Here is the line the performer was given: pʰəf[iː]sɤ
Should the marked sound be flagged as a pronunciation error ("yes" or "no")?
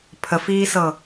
no